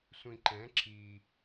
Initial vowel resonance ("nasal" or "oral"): nasal